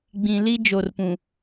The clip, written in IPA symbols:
ɡ͡bĩ˨li˦ d͡ʒo˨rpũ˨

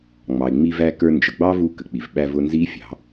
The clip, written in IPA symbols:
ŋ͡mɑ˩ɪ̯ŋ͡mi˧væ˧kə˞˧ nd͡ʒə˩ɡ͡bɑ˥ vu˧kə˩k͡pi˩vɓæ˧ vʊ˧nzi˧˥fʲɑ̤˩˧

